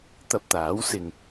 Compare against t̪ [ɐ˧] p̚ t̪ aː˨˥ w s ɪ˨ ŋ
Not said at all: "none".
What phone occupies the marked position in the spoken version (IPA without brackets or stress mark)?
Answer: ɐ˧